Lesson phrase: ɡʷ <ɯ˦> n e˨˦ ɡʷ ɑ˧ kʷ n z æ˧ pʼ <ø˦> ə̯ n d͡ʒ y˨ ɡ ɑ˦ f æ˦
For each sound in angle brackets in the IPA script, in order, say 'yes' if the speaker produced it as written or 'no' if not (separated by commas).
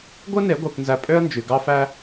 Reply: yes, yes